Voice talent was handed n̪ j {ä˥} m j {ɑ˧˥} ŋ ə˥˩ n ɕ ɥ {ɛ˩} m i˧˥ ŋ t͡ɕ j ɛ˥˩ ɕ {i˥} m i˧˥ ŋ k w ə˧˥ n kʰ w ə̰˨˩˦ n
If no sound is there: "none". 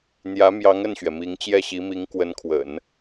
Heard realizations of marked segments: ä˧˥, ɑ˧˥, ɛ˩, i˧˥

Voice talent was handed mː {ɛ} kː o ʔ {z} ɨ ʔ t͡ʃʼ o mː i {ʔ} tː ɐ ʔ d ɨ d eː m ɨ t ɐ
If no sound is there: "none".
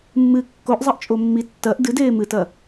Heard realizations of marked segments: ɨ, zˤ, none

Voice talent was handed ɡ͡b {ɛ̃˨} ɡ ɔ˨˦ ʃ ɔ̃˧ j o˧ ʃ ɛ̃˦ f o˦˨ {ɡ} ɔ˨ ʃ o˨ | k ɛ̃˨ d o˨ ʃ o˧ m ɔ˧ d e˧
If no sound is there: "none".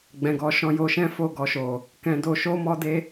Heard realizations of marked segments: ɛ̃˨, ɡ

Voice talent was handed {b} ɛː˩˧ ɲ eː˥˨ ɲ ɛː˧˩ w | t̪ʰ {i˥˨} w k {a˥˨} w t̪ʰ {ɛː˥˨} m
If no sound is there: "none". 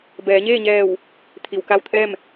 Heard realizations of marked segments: b, i˩, a˥˨, ɛː˥˨

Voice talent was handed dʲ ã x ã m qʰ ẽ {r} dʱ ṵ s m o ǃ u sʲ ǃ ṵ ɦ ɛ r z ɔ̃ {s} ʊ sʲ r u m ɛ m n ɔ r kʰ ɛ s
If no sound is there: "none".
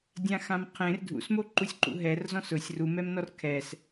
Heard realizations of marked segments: r, s

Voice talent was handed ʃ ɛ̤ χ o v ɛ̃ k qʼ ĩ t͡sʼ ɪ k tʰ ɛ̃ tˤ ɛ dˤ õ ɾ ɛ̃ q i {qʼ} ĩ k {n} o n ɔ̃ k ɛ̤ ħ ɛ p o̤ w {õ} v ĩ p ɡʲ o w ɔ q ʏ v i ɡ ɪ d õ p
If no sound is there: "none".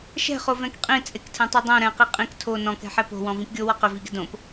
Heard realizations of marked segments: qʼ, tʰ, ɔ̃

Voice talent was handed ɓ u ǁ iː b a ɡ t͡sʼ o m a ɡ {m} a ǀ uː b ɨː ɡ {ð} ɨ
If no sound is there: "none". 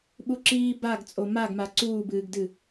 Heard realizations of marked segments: m, d

